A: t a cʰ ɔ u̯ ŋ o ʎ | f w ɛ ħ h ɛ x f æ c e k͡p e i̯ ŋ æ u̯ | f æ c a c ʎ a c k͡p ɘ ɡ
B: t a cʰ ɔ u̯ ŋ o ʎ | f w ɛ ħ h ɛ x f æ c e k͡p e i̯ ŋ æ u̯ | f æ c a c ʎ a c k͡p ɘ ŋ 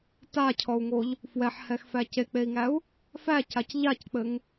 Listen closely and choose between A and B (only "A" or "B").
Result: B